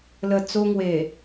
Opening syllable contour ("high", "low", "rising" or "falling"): low